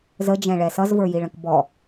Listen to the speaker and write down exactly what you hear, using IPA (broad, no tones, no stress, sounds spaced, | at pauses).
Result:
z ə d͡ʒ ɛ̃ ɭ ɛ s ʌ z v ə˞ j i ɭ ə̃ k b ɔ